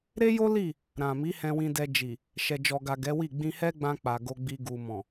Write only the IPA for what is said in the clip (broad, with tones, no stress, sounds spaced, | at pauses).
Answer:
ɾ e˦ j o˦ l i˦˨ | ɾ ã˨ m i˨˦ h ɛ̃˧ w ĩ˧ d ɛ˧ d͡ʒ i˨ | ʃ ɛ˨ d͡ʒ ɔ˨ ɡ a˨ ɡ ɛ˨˦ w i˦˨ ɡ͡b ĩ˧ h ɛ˦ ɡ͡b ã˧ k͡p a˨ ɡ o˧ ɡ͡b i˧ ɡ u˨ m ɔ̃˨